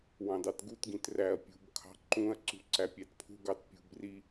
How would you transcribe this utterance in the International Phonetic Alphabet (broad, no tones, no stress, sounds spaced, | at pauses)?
w ɑ̃ d ɑ t ɡ u t ɡ ĩ t r æ ɐ̯ pʲ ṳ b kʰ ɑ̤ ǃ ũ ɐ̯ ǀ ṳ ǀ æ pʲ æ t pʰ ṳ ɡ ɑ t pʲ ṳ b r i